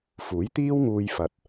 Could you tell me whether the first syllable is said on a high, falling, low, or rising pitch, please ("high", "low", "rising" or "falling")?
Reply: rising